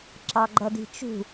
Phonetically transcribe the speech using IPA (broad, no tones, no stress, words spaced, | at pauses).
ǁɑɡ͡ǃʌdi̤t͡ʃṳ